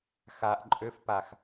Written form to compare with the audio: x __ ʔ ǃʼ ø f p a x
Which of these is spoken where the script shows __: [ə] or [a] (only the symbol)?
a